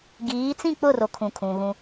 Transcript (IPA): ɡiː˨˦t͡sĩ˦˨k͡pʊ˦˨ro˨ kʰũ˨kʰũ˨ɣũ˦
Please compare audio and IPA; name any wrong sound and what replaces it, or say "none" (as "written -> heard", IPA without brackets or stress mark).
none